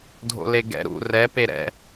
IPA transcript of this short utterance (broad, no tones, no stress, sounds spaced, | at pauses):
dʱ o̰ l e ɡ ɛ̰ ɾ ṵ r ɛ p e ɾ ɛ̰